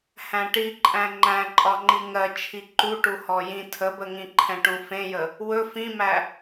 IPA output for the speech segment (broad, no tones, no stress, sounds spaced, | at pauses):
h æ̃ ʈ i ǃʼ æ̃ ŋ͡ǃ æ̃ ǃʼ ɒ ŋ͡ǃ i ŋ ɜ t͡ʃʰ i ǃ u ʈ u h ɔ j ĩ tʰ ə b ə ŋ ĩ ǃʰ ɛ̃ ʈ ũ f ẽ j ə | w ɵ f ĩ m æ